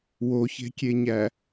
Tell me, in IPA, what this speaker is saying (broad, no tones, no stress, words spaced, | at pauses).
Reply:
woçe̤kʲeɲæ